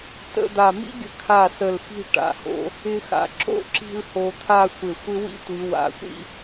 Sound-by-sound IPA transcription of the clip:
t ə̰˥˧ d̪ a˧˩ m ḭ˥ ɡʲ ə̤˧˩ kʰ a˧˩ s ə˧˩ l f i̤˥˧ ʈ a̰˩˧ h o̰˧ | ɪ˧ x a̰˩˧ ǁ o̰˥˧ ǁ i̤˥˧ l h o˧ t̪ʰ a˥˧ sʷ ɪ˧˩ sʷ ɪ˥ w ḭ˥ tʷ i˩˧ w a̰˩˧ sʷ ḭ˥˧

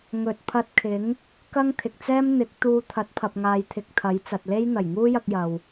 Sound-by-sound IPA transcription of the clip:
ŋ ɵ˨ t̚ pʰ ɐ˧ t̚ kʰ ɪ˨˥ ŋ | k ɐ˥ ŋ t̪ʰ ɪ˨ k̚ t͡s ɛː˥ m n̪ ɪ˨˥ k̚ t̪ uː˧ t̪ʰ ɐ˨˥ t̚ pʰ ɐ˨ p̚ ŋ aː˨ j t̪ʰ ɪ˨ k̚ t̪ʰ ɐ˨˥ j t͡s ɐ˨ t̚ l e˥ j n̪ ɐ˨˩ j ŋ uː˥ j ɐ˧ k̚ j ɐ˨ w

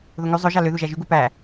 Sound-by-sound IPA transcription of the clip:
ð o ŋ y zˤ ø ʒ ɑ l ø ð u ʒ æ ʒ y ɡ u p æ

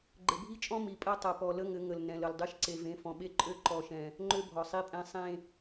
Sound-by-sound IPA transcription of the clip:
ɡ͡ǃ ɘ˨ bʱ i˦ t͡ʃʼ ɔ̃˦ m i˨ pʼ ɜ˦ tˤ ə˨ p ɔ˨ l ə˦ ŋ ɘ˨˦ ŋ ə˨ l n ɛ̃˨ l ə˨ l dˤ e˦ ʃ ǀ e˨ v ẽ˨˦ f ɔ̃˨ ɓ e˦ ǃʼ ø˦ ǃ ɔ˦ ʃ ɛ̃˦ | ŋ͡ǃ ø˦ bʱ ɔ˨ sˤ i˦ pʼ ɛ̃˦ sˤ ẽ˦

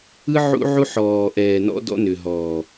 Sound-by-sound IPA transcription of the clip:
ɯ˦ ʕ ṵ˦ ʕ u˦ ħ ɔː˨ ʔ ɛː˨ n ɔ̰˦ d ɔ̰˦ n ʏ˨ ɦ ɔː˨

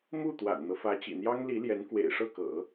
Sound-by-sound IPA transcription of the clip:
m u˥˩ t̪ w a̰˨˩ n n̪ ɤ˦ f ä˧˥ t͡ɕ ḭ˨˩ n̪ j ɑ˥ ŋ l i˧˥ l j ɛ˧˥ n k w ḛ˨˩ ɪ̯ ʂ ɤ˥˩ k ɤ̰˨˩˦

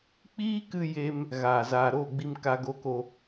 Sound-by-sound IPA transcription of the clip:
k͡p iː˦ k ɨ˧ j e˧ m | ɣ aː˨ z aː˨ ɾ oː˦˨ ɡ͡b i˧ m k a˧ ɡ o˧ k o˧

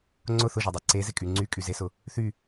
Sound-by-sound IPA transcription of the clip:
ŋ͡ǀ ʊ θ ʊ ʒ ɛ dˤ ɛ ǀ e z ɪ kʼ y ŋ͡ǀ y kʼ y z e s ʊ | θ y

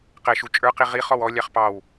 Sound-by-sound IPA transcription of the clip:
q ɛ ʃ u t͡ʃʼ ə˞ q i ʁ i χ ɔ w ɔ lʲ ɑ χ p ɑ w

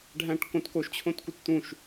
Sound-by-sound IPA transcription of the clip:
ɖʱ æ̃ ʈ k õ t k o ʃ t͡ɕʰ õ t k u t t̪ ũ ʃ

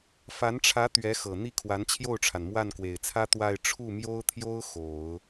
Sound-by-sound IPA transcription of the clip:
f a˧˥ n ʈ͡ʂʰ ä˧˥ t̪ ɥ ɛ˧˥ x ɤ˨˩ n̪ i˥˩ kʰ w a˧˥ n t͡ɕʰ j o˥˩ ʊ̯ ʈ͡ʂʰ a˩ n m w a˥˩ n k w e˨˩ ɪ̯ t͡sʰ ä˥ t̪ w a˥˧ ɪ̯ ʈ͡ʂʰ u˥˩ m j o˥ ʊ̯ t̪ʰ j o˥ ʊ̯ x o˨˩˦ ʊ̯

